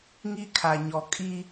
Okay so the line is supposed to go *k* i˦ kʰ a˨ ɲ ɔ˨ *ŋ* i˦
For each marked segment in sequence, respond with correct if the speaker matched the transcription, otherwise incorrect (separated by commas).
incorrect, incorrect